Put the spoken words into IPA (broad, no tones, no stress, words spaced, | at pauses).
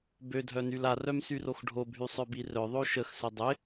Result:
bødʱœnyl arœm syroxɖʱobʱy sˤœbirœ ðˤoʃəxsʏ dˤɪ